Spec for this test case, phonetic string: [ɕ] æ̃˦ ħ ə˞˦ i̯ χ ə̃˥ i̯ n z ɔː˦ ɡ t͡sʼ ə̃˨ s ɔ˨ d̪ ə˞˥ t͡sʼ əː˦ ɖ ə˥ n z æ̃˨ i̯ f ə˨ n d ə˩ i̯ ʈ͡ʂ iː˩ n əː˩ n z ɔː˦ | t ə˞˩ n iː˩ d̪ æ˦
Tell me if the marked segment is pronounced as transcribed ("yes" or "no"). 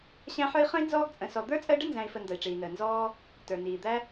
yes